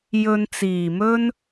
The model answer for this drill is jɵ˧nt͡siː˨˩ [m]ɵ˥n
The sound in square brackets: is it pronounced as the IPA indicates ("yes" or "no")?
yes